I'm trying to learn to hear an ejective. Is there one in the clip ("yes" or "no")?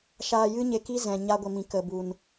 no